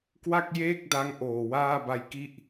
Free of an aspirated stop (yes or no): yes